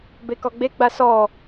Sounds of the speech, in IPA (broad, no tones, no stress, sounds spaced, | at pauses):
b e k ɔ ɡ͡b e ɡ͡b a s ɔ